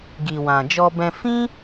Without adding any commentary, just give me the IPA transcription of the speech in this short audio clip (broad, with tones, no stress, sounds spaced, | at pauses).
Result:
ɡ i˨ w ã˨ d͡ʒ ɔ˧ b ɛ̃˧ f ĩ˦